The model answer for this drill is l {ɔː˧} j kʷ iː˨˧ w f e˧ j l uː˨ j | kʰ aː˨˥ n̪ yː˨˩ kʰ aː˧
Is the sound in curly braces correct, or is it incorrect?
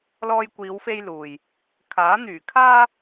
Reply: correct